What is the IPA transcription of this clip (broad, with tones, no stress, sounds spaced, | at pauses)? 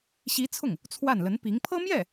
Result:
ɕ i˧˥ t͡sʰ ʊ˥˩ ŋ | t͡sʰ w a˥˩ n l ə˧˥ n p i˧˥ ŋ pʰ ɤ˥ m j ɛ˥˩